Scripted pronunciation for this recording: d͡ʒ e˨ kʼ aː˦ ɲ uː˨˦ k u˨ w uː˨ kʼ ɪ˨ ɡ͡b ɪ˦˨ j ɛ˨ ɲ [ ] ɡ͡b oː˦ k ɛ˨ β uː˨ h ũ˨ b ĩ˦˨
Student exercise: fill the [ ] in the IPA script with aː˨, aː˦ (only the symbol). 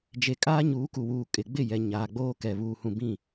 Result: aː˨